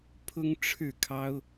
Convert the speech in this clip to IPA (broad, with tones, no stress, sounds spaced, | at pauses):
pʰ ʊ˥ ŋ ʈ͡ʂʰ ɻ̩˥˩ kʰ ɑ˥ ʊ̯